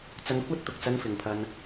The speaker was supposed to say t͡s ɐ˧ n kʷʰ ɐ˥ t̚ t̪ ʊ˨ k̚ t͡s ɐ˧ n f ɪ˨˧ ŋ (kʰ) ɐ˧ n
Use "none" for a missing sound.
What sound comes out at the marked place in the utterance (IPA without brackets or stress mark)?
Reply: pʰ